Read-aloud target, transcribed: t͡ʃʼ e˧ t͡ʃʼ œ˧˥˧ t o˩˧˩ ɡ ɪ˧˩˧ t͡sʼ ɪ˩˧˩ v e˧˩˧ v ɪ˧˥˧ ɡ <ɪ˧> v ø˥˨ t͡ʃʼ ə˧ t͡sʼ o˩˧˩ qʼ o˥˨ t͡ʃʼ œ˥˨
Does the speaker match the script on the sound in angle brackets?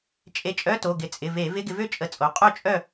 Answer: yes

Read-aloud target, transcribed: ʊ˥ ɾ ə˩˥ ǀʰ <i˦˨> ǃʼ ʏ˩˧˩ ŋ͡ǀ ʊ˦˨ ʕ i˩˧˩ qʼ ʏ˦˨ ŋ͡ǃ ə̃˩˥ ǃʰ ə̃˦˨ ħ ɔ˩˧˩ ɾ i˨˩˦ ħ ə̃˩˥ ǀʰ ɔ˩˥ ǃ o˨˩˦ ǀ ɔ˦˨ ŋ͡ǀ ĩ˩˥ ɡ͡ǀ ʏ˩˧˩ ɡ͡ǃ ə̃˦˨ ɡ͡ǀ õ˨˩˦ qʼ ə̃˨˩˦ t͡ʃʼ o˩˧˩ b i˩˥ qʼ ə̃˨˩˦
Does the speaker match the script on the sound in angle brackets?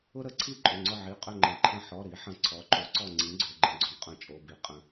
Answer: no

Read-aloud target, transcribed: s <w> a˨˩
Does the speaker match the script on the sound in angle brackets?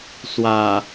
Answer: yes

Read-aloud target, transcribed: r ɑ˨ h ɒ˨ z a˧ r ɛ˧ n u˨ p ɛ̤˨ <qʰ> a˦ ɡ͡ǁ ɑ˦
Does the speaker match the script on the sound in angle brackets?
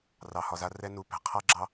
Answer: yes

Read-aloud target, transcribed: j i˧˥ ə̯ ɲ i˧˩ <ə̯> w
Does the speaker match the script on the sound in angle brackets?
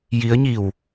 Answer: no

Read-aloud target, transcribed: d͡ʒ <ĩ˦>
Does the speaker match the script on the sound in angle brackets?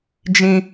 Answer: yes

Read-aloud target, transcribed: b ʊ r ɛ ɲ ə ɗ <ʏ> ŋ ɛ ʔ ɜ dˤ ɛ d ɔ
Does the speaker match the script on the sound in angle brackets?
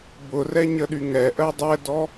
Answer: no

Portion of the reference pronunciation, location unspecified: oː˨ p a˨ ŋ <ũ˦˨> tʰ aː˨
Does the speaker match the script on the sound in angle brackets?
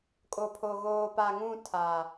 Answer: yes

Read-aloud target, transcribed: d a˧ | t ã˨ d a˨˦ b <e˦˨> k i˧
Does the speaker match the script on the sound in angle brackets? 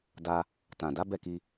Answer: no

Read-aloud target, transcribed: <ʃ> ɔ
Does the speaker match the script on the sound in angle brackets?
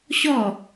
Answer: no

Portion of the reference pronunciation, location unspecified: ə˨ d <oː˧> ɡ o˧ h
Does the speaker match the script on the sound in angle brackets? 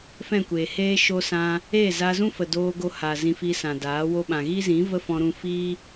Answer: yes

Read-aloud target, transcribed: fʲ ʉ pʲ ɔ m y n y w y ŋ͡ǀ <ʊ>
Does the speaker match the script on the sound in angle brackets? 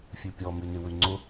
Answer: yes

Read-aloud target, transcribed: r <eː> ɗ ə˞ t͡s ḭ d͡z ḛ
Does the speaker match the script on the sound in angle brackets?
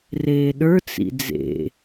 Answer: yes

